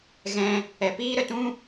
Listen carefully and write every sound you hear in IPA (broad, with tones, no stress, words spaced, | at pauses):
ɣɛ̃˧ | ɛ˨piː˦ɾə˨ tũ˦